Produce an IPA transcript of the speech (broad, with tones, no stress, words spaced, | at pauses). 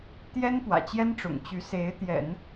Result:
t̪jɛ˥npwä̰˨˩t͡ɕjɛ˥nʈ͡ʂʊ̰˨˩ŋ t͡ɕy˧˥se˧˥ɪ̯ t̪jɛ̰˨˩˦n